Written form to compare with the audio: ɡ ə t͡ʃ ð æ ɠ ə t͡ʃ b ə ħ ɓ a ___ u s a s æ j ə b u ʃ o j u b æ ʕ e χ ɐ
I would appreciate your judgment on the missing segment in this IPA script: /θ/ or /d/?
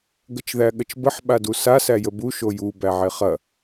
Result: d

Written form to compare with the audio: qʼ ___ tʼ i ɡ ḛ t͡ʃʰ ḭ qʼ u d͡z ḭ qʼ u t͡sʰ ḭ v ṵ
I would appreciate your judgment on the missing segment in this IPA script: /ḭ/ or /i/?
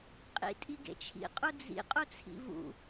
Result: ḭ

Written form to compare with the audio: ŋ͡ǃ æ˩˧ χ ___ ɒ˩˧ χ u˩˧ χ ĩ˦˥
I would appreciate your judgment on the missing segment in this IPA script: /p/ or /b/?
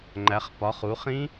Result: p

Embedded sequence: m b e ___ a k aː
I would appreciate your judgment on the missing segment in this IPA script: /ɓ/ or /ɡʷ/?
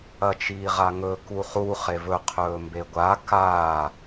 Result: ɡʷ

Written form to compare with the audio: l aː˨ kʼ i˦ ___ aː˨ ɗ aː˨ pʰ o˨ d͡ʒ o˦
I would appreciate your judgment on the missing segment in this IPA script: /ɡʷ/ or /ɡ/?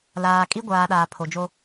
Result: ɡʷ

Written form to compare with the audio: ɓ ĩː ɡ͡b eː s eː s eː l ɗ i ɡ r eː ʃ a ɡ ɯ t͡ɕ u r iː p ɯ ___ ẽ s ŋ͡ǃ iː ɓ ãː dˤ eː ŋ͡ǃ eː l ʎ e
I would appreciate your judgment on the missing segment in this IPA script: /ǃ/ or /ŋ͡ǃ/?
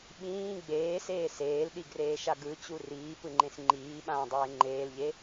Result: ŋ͡ǃ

